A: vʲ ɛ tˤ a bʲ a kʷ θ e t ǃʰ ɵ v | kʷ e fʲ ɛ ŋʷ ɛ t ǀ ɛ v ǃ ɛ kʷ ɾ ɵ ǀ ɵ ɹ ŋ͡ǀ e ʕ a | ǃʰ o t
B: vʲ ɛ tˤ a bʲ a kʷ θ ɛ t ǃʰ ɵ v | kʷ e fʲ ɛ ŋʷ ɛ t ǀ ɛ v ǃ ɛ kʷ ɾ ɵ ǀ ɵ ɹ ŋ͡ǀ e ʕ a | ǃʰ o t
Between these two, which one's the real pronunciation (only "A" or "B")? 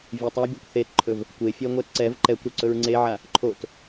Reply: A